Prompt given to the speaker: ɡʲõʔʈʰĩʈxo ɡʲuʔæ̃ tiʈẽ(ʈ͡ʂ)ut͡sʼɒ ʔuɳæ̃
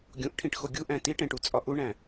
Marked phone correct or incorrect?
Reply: incorrect